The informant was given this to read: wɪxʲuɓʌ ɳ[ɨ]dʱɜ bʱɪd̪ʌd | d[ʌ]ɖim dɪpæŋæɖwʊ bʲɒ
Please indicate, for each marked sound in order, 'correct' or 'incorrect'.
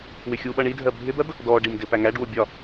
incorrect: i, incorrect: ɔ

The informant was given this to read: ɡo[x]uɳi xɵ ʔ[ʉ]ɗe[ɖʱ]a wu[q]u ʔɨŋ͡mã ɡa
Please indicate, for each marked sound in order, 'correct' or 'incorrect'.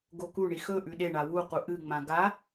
incorrect: k, correct, incorrect: ɳ, correct

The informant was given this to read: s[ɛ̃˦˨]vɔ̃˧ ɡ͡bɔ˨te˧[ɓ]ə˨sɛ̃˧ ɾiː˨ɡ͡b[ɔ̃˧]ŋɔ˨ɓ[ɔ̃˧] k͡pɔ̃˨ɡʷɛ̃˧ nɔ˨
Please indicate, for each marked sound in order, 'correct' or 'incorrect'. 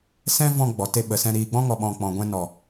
incorrect: ɛ̃˦, correct, incorrect: ɔ̃˦, incorrect: ɔ̃˨

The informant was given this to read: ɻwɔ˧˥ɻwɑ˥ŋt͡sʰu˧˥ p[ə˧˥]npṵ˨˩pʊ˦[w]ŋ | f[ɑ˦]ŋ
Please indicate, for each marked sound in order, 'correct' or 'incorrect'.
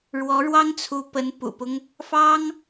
correct, incorrect: none, incorrect: ɑ˥

